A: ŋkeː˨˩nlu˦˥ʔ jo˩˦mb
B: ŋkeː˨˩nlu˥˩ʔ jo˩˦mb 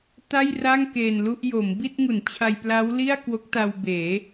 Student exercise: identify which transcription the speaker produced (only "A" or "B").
B